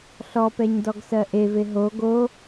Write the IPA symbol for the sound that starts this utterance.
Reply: ɬ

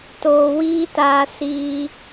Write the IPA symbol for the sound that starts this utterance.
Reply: t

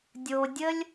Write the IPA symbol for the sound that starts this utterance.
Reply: dʲ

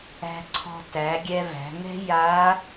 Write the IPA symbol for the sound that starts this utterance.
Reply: æ̤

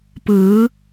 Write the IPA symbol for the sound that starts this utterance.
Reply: p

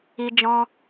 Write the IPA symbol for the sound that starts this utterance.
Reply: i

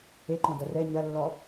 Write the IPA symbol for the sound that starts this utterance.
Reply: e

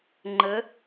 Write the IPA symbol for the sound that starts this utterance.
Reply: ŋ͡ǃ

